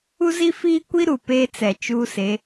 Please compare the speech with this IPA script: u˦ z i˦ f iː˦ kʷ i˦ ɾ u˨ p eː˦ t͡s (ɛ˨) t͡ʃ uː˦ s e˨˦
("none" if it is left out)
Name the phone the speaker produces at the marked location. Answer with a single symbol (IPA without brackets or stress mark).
ɛ˨